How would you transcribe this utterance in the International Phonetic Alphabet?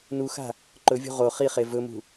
n u x a̤ | ǃ ɵ vʲ ṳ ʁ o χ i χ e v ɵ m ṳ

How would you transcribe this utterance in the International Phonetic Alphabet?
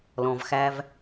l ɔ̃˩ v x æ˨ v

